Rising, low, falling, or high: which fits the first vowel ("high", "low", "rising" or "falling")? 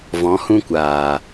rising